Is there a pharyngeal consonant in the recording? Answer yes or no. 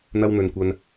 no